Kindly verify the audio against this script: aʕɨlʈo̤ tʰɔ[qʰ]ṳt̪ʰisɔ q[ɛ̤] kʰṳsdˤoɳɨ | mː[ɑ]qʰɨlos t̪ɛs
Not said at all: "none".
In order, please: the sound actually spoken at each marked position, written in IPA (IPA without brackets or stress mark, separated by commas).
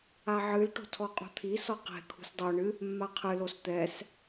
qʼ, ɛ̤, a